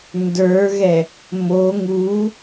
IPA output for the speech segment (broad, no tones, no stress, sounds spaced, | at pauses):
n d ə˞ ɣ ɛ | m o ŋ u